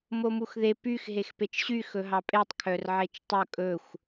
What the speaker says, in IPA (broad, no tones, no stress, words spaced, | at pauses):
momuxðe pyx ɦexpet͡ʃɕy xɵɦɑpʼetˤ kʰœrʕet͡ʃtˤɵ kʼɵxʷ